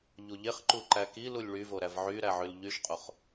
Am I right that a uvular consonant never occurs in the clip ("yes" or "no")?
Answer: no